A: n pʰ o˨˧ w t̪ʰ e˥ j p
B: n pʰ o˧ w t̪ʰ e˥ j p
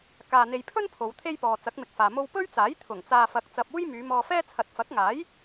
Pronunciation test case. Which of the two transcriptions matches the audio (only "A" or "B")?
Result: A